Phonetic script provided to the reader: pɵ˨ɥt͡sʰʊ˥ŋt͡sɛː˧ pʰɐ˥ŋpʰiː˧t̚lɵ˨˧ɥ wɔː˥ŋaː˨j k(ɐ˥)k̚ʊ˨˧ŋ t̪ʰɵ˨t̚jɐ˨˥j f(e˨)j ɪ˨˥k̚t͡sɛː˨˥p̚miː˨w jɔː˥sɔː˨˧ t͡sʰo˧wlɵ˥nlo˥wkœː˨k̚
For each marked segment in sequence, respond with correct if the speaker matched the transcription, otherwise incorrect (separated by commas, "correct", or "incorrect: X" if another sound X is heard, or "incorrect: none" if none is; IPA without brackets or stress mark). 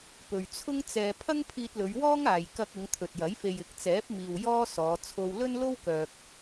incorrect: ɐ˧, correct